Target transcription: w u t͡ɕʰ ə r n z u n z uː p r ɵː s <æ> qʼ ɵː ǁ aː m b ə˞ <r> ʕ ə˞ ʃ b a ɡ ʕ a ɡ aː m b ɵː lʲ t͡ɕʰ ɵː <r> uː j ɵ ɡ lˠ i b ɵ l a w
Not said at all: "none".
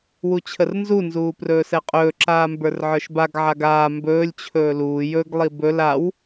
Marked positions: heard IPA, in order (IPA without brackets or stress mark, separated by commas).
ɛ, r, l